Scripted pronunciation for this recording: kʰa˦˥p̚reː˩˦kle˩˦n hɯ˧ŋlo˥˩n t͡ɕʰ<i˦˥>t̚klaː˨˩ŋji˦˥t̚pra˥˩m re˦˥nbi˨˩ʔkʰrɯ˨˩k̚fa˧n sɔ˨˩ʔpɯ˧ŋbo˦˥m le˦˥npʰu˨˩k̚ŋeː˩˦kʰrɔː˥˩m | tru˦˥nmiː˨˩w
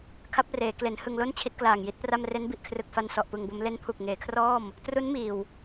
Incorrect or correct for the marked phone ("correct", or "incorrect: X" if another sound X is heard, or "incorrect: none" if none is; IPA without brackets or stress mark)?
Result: correct